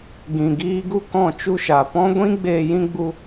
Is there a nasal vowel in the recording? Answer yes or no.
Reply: yes